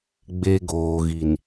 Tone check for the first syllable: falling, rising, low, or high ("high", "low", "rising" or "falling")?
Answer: high